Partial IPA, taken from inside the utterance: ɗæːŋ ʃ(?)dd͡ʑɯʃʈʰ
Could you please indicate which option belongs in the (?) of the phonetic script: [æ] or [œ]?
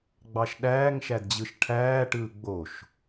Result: æ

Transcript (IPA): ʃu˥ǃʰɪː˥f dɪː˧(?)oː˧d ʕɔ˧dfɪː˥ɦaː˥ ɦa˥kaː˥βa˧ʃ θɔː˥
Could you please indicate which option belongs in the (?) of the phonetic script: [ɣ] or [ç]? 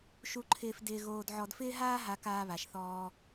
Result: ɣ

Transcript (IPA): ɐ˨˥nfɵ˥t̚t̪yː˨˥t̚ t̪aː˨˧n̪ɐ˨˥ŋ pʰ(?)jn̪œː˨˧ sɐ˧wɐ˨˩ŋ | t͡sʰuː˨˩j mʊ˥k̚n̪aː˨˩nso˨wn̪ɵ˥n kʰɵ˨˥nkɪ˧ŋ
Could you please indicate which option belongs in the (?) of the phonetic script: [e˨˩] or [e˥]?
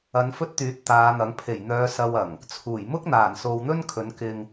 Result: e˨˩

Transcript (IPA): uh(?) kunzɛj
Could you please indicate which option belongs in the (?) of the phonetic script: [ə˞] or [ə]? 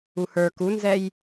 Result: ə˞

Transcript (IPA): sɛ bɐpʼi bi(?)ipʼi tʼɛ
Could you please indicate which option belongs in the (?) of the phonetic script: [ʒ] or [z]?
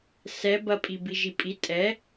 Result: ʒ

